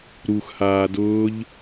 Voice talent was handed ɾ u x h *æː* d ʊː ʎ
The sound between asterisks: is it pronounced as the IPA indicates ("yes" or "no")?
no